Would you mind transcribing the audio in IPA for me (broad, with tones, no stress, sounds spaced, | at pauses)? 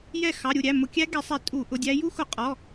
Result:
j ɛ˥˩ x ɑ˩˧˩ ɾʲ u˥˩ ɾʲ æ˩˧˩ m ʊ˧˩˧ kʲ æ˦˥ ɡ ɛ˧˩˧ sˤ ɛ˧˩˧ tʼ u˧˩˧ ʔ ʊ˩˧˩ dʲ æ˦˥ j u˦˥ x ʊ˧˩˧ qʼ ɔ˩˧˩